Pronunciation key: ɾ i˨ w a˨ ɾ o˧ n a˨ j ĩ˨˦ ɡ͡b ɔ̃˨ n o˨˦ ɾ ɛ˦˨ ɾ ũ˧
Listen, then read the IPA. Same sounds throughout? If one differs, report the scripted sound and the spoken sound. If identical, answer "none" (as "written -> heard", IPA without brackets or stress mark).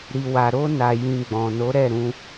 ĩ˨˦ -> ĩ˨